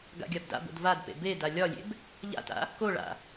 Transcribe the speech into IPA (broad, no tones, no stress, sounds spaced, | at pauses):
ɡ a̰ ɡʲ a b d a̰ b o̰ d v a d p ḛ b e d a lʲ ɒ lʲ ḛ b | ʎ a̰ t a̰ | k o ɭ a̰